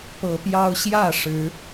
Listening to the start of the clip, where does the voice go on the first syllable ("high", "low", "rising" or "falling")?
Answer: rising